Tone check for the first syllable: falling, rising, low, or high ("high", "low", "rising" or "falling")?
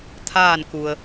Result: falling